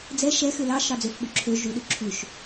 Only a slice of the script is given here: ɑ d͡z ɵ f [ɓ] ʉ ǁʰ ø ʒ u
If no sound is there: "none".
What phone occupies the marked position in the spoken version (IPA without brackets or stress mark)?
ɓ